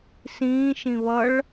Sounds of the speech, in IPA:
s ĩː ʃ ĩ β ʌ ɭ

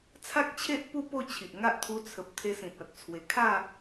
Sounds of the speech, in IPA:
t͡sʰ a˦ k̚ t͡ɕʰ e˦ ʔ p u˥˧ p o˥˧ t͡ɕʰ i˨ ʔ ŋ a˦ ʔ t̪ʰ u˧ t͡sʰ ə˨ p̚ t̪ʰ e˧ s ĩ˨ t̚ a˨ t̚ t͡sʰ w e˨˩ kʰ a˥˧

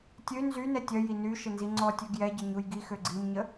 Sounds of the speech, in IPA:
tʲ ø n z y n ɛ tʲ œ j i n y ʃ ə n z i ŋ͡ǀ ɔ tʲ ø ɡ j ɛ ɟ ə ɲ u j ɡ i x ø ɡ͡ǀ i m ɲ ə

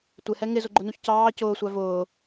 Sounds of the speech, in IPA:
tʷ ɪ h ɛ ŋ ɪ z ʊ ɡ͡ǃ ʊ n u ç c ɑː c ʊː sʷ æ v ʊː

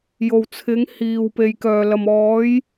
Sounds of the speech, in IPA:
j o˨ w t͡sʰ ɪ˨˧ ŋ h iː˨ w p e˨ j k œː˨ l ɐ˨ m ɔː˨˧ j

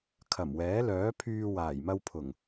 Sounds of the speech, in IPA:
kʰ ɐ˨˩ m w ɛː˨˥ l œː˨˥ pʰ yː˧ w aː˨˩ j m ɐ˧ w pʰ ʊ˨˩ ŋ

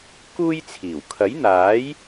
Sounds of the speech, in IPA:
k uː˥ j t͡sʰ iː˨˩ w kʰ ɐ˨˥ j n̪ aː˨˥ j

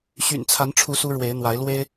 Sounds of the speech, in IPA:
ɕ y̰˨˩ n t͡sʰ a˨˦ n ʈ͡ʂʰ u˨˦ s u˦ ɻ w e˨˦ ɪ̯ n̪ w a˨˦ ɪ̯ l w e˦ ɪ̯

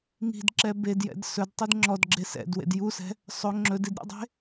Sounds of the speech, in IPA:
ŋ i̤ d ǁ ɛ b e d j ɛ̰ d s ɵ d tˤ i d ŋ͡ǁ ɔ d ɡ͡ǁ e s ɛ̰ d w ḛ d j u s ɛ̤ | sˤ ɵ ŋ͡ǁ ɵ d i d ɾʲ ṵ dˤ e̤

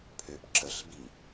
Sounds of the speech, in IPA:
pʰ ø p ǁ ə ɬ b i

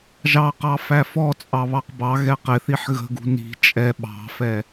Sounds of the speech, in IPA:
ʒ ɑ q ɑ f æ f ɔ t͡sʼ ɑ β ɑ q b ɑ ɣ ɛ q ɪ θ i ħ ɣ ə̤ ɡ ṳ n i̤ t͡ʃʼ ɛ ɓ ɑ̤ f ɛ

